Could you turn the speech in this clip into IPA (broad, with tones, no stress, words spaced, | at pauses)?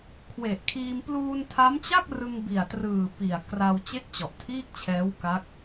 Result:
kʰwe˨˩ʔkʰiː˧m pluː˧ntʰa˦˥mt͡ɕa˥˩k̚ rɯ˧ŋbi˨˩a̯trɯː˨˩ pi˨˩a̯kra˧w t͡ɕe˥˩k̚t͡ɕɔ˨˩ʔtʰiː˥˩k̚t͡ɕʰɛː˦˥w ka˦˥k̚